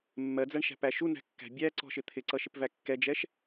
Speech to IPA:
mː ɜ d͡z æ ɳ ʃ æ̤ p æ ʃ u n æ̤ kː æ̤ bʲ æ ǀ ɔ̤ ʃ ɪ t̪ʰ ɪ ǀ ʌ ʃ ɪ p v æ kː ɛ d͡ʒ ɛ ʃ

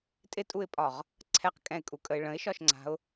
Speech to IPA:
tʼ ɪ tʼ u ɪ̯ pʼ ɒ ʁ | ǀʰ ɛ q kʼ ɛ̃ ɪ̯ kʼ u kʼ ə ɪ̯ ɭ ə̃ ɪ̯ ʃ ɒ ʃ ŋ͡ǀ a̤ ʊ̯

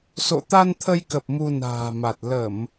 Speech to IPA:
s o̰˧˨ t̪ a˧ n t̪ʰ ə˧ j k ə˨˩ p̚ m u˧ n a̤ː˨˩ m a˨˩ t̚ l ə˧˩˨ m

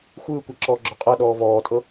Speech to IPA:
xʷ ɯː kʷ a ǁ ɔː ɡ͡ǁ ɔ qʼ ɤ ɗ ɔː v ɔː tʼ ɤ

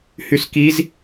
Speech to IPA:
h y s k i z

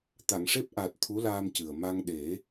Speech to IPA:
t̪ a˨˩˨ ŋ ʂ e˦˥ p̚ ʔ aː˨˩ t̚ t̪ʰ u˧˥ l aː˧ m c ɨ˨˩ ə̯ m a˧ ŋ ɗ e˨˩˦

